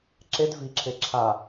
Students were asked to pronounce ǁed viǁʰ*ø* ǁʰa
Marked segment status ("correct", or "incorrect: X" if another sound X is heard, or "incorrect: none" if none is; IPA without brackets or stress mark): incorrect: e